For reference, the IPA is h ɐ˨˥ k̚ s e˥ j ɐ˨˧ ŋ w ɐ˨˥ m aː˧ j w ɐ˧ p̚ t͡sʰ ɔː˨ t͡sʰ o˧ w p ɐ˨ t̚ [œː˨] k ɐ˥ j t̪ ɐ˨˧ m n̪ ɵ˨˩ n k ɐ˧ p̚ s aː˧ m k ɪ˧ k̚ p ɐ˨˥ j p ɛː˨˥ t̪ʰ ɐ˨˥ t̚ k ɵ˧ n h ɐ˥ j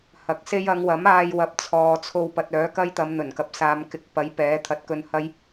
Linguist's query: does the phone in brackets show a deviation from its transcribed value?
yes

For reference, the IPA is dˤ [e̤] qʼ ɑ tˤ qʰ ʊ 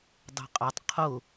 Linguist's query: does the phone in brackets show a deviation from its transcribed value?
no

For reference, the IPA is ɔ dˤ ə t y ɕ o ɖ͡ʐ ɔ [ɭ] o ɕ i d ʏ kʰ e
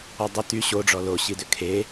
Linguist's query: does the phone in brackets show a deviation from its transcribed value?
yes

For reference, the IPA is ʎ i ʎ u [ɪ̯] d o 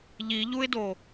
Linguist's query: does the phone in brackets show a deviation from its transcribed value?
no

